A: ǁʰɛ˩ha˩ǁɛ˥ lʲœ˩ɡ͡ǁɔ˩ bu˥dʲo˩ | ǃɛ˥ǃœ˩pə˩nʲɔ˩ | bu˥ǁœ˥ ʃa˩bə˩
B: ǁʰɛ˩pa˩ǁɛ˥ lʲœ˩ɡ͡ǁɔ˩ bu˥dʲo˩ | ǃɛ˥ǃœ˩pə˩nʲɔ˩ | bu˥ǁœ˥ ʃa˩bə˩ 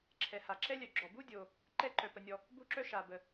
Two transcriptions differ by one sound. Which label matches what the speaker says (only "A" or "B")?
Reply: A